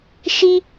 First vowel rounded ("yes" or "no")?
no